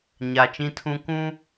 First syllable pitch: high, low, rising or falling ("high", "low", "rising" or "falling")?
low